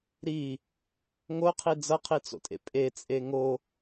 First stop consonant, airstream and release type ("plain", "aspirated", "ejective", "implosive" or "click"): aspirated